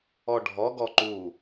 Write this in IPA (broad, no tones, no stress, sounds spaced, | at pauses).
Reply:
ɔ ɖʱ ɔ ɡ ɔ ǃ u